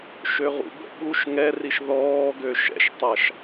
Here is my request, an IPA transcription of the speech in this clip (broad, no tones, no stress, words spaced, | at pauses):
ʃøʁṵbə̰ ɓuʃ ŋɛriʃ ðɔː ɡøʃɛ̰ʃtˤaʃ